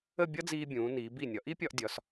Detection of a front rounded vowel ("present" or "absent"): absent